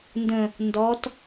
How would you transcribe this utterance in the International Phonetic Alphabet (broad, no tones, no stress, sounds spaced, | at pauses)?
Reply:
n d ə̃ | n d ɔ t